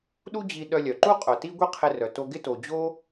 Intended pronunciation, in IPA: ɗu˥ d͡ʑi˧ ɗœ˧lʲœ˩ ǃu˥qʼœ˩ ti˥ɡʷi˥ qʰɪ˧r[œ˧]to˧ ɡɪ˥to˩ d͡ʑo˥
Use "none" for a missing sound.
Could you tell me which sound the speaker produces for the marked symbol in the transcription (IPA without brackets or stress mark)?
œ˩